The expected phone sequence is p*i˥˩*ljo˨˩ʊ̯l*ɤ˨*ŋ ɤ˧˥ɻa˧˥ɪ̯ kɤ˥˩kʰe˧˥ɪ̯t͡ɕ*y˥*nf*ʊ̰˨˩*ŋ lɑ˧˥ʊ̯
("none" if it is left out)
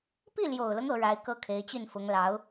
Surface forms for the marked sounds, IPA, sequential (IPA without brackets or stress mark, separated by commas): i˥˩, ɤ˦, y˥˩, ʊ˧˥